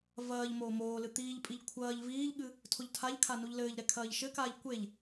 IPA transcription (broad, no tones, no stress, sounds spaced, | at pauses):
v ɐː ʎ m oː m oː l ɨ t̪ iː ʎ pʼ i ʎ kʷʰ ɐː ʎ v iː ʎ ɠ ɨ | tʰ o ʎ tʰ a ʎ kʰ a n u ʎ l ɘː ʎ ɾ ɛ kʰ ɐː ʎ ʃ ɘ k aː ʎ kʷ e ʎ